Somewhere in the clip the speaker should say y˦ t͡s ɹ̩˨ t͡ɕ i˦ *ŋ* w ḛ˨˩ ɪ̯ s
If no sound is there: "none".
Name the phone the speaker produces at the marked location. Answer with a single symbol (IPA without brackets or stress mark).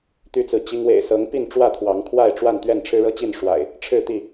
ŋ